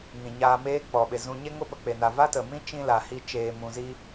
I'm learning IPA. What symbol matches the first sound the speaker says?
ŋ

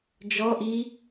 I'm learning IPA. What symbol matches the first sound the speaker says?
d͡ʒ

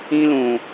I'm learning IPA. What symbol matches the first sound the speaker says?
ĩ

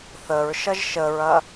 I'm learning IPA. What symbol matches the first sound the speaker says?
θ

